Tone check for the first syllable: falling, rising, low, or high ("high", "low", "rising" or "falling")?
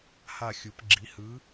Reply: falling